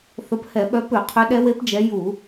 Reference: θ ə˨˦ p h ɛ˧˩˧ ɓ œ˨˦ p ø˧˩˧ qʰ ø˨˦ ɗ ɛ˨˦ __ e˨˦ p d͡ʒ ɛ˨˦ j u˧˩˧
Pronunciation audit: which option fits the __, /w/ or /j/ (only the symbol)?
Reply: w